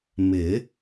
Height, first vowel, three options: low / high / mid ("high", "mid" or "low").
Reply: high